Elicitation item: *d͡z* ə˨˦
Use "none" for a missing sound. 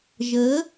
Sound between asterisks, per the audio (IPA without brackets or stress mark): ʒ